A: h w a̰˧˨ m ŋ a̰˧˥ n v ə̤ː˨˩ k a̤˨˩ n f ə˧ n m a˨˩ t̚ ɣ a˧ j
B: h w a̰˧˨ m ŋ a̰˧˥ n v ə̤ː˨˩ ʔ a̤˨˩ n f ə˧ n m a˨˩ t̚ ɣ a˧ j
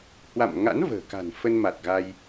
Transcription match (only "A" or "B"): A